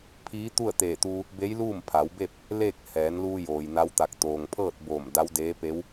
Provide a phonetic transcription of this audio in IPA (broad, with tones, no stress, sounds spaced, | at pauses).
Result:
pʰ iː˧˥ t̪ u˥˨ ə̯ t̪ eː˧˩ t̪ uː˧ | b e˧˥ j l uː˥˨ m pʰ a˩˧ w b e˥˨ p̚ | l eː˥˨ k̚ h ɛː˩˧ n l uː˧ j oː˩ j n a˧˥ w t̪ a˧˩ k̚ t̪ oː˩ ŋ pʰ ɤː˥˨ t̚ b oː˧˩ m d a˧˥ w d eː˧˥ p e˧˥ w